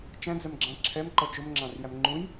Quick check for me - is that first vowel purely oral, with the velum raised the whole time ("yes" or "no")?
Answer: no